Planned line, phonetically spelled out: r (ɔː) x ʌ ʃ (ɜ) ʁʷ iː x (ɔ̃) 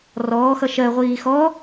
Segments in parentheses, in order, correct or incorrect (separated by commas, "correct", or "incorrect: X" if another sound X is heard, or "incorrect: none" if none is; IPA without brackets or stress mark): correct, correct, incorrect: ɔ